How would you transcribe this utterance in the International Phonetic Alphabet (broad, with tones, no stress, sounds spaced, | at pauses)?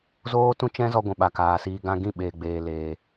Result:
z oː˦ t ũ˦ t͡ʃ ɛ̃˦ z ɔ˧ ɡʷ ɛ̃˨ ɓ a˨ k aː˨ s iː˧ ɡ ã˦ ɡ ĩ˦˨ ɓ eː˨ ɡ͡b eː˨ l eː˨